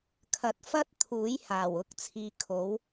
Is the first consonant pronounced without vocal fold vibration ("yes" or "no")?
yes